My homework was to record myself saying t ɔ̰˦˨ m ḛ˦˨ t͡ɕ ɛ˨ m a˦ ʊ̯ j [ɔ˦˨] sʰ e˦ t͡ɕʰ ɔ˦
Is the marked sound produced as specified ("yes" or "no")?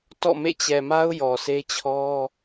no